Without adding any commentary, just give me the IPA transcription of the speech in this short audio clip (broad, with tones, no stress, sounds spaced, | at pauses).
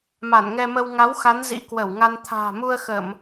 m a˧˩ n ŋ ɛ˧ m ə˧ w ŋ a˨˦ w x a˨˦ n z ḭ˧˥ k w ə˧˩ w ŋ a˧ n t̪ʰ a̤ː˨˩ m u˧ ə̯ x ə˧˩˨ m